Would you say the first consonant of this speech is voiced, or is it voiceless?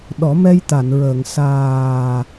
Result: voiced